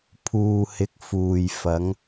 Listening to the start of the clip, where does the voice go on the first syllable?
low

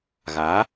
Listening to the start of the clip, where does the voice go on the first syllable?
rising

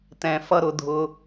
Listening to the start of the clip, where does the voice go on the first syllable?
low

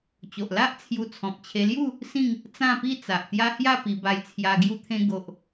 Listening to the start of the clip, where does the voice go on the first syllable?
low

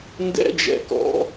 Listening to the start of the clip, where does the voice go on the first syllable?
high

